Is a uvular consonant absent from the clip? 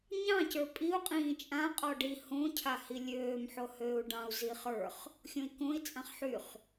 no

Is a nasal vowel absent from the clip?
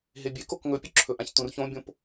no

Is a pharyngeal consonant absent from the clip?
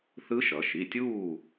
yes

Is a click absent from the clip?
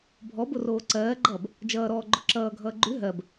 no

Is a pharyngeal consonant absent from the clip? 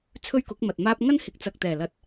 yes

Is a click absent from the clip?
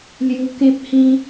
yes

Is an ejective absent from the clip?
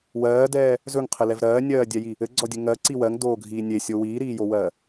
yes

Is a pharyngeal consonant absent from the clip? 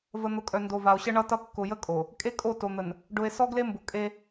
yes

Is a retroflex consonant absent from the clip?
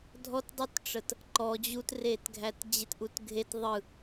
no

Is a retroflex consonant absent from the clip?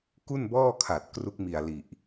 yes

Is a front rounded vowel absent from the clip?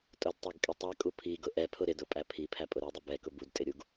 yes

